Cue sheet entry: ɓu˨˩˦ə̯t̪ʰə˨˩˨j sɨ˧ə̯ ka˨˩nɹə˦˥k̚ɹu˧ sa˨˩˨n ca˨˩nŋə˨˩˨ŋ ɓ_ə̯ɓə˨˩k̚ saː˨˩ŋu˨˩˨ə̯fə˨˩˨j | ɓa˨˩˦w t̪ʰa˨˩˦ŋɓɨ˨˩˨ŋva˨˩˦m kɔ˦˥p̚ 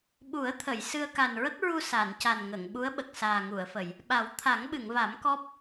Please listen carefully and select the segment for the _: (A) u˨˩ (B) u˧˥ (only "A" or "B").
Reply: B